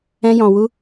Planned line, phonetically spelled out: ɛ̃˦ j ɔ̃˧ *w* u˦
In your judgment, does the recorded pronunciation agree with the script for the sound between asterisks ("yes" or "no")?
yes